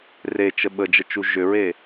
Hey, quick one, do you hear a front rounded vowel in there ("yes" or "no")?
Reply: yes